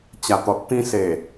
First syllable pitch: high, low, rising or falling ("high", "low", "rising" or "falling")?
low